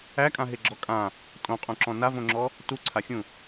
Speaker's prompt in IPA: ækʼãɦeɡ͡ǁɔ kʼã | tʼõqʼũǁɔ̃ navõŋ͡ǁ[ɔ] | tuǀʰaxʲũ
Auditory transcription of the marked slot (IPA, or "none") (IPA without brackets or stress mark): ɔ